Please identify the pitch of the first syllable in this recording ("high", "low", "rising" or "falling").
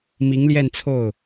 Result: rising